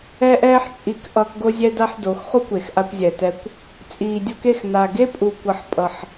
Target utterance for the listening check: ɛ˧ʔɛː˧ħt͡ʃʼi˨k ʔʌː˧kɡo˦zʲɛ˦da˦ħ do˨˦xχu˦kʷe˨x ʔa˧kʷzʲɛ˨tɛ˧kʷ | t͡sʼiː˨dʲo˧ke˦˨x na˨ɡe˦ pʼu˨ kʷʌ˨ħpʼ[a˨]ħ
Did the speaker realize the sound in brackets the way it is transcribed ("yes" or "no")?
no